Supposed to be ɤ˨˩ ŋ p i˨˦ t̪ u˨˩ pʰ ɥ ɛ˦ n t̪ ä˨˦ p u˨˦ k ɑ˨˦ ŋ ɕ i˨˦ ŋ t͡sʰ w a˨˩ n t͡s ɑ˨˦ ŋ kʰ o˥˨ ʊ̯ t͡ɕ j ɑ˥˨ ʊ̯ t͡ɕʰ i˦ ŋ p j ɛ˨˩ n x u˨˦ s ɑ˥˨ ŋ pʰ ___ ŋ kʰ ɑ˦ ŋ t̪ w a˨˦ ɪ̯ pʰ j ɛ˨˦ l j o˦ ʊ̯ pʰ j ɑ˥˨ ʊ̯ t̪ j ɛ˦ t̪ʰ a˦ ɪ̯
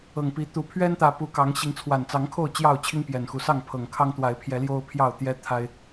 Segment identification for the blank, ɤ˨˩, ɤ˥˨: ɤ˨˩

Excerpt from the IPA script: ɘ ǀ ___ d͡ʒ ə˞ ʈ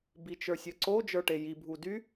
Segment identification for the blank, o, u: o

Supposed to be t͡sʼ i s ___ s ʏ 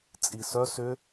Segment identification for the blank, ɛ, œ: œ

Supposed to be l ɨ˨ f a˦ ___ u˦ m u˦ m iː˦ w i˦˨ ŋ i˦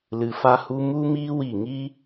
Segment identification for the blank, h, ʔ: h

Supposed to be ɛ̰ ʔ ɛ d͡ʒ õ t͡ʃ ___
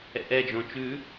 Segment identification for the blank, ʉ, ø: ʉ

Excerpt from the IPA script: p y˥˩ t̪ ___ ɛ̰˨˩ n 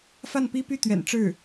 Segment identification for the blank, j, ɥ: ɥ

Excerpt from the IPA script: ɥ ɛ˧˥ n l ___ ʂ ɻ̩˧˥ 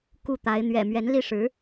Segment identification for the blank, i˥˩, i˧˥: i˥˩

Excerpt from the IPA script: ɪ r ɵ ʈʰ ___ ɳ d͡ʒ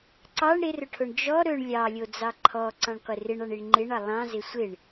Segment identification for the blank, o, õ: o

